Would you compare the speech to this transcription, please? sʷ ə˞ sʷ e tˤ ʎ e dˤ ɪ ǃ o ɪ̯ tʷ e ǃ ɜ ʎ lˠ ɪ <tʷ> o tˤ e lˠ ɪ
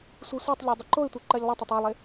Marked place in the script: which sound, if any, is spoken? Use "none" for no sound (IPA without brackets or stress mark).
tˤ